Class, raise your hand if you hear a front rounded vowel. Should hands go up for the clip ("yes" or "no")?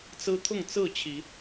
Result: no